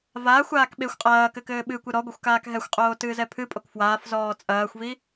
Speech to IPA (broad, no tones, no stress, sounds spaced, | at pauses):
v aː xʷ aː k ɓ e xʷ qʼ ɐː k ɘ k ɘː ɓ ɨ kʷ ɨ ɾ ɔ ɡʷ ɐ xʷ k aː k ɦ ɛ xʷ qʼ oː t ɨː z ɛ pʰ ɨ pʼ o k f w aː f z ɔː t͡sʼ ɐː xʷ v i